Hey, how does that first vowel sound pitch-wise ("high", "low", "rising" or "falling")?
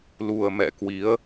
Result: low